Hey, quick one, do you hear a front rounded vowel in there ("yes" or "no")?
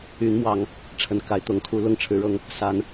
yes